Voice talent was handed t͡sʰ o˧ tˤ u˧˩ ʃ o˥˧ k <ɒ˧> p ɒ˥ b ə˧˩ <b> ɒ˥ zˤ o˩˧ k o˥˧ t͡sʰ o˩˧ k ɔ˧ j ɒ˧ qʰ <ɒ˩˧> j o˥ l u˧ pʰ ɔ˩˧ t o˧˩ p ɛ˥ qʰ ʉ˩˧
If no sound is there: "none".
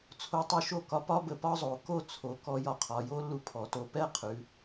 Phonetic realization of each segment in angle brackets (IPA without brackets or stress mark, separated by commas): ɒ˧, p, ɒ˩˧